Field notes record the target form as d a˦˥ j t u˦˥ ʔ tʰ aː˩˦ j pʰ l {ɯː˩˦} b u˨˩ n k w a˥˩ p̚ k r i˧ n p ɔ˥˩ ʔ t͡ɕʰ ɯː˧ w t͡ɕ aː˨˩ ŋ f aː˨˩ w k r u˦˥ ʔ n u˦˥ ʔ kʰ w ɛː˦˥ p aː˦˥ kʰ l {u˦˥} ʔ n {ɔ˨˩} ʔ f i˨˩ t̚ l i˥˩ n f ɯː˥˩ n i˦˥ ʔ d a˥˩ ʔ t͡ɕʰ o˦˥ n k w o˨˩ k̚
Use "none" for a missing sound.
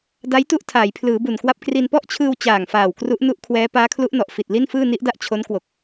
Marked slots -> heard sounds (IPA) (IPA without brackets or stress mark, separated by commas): ɯː˩˦, u˦˥, ɔ˨˩